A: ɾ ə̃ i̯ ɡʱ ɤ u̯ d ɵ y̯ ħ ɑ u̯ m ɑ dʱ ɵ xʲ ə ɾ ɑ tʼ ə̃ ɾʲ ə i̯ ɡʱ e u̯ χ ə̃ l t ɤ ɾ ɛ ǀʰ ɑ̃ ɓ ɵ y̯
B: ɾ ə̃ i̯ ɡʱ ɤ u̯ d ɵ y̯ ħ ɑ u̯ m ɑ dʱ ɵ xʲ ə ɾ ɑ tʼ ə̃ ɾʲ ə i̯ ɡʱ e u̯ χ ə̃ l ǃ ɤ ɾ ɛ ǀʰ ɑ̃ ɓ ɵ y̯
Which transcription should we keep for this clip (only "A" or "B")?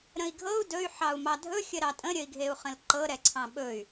B